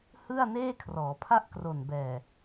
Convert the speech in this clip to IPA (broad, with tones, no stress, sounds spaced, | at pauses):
h ɯ˥˩ a̯ n eː˥˩ kʰ r ɔː˩˦ pʰ a˥˩ ʔ k r o˨˩ n b ɛː˨˩